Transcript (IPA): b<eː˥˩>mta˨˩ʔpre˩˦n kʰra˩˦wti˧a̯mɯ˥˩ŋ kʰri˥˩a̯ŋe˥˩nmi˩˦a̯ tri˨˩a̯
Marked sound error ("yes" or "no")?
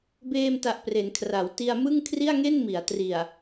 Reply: yes